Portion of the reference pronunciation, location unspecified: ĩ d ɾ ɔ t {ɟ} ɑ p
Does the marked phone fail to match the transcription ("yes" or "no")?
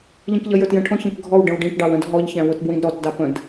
yes